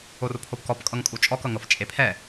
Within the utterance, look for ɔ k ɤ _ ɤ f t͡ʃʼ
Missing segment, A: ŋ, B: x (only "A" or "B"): A